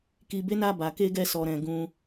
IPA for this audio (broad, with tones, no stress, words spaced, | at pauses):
ki˨be˨˦na˧ ba˨ ke˧ɡɛ˧sɔ˨ ɾɛ̃˨ɡũ˧